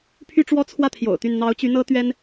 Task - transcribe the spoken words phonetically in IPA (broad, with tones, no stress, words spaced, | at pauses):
pʰy˥˧ʈ͡ʂwɔ˥˧t͡sʰwä˥˩ t̪ʰjo̰˨˩ʊ̯t̪y˥˩n n̪ɑ˧˥ʊ̯t͡ɕy˧˥ n̪ɤ˥t̪ɥɛ˥n